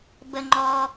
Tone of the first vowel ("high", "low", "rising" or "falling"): low